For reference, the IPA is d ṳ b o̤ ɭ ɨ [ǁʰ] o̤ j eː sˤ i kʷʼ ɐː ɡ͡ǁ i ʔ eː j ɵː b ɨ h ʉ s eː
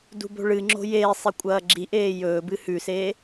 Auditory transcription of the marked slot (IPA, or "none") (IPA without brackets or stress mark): ŋ͡ǁ